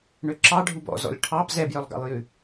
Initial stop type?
click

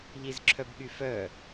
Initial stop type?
click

